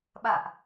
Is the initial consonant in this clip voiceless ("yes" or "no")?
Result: no